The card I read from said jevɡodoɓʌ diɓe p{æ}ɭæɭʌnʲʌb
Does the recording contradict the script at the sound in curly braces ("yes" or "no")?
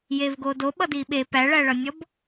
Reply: no